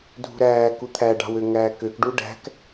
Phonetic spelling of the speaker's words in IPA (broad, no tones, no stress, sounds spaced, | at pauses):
dʱ ṳ ɾ æː k u t̪ʰ æ ɖ ɑ̤ w ø ŋ æː k ø k ɖ u ɖ æ̤ k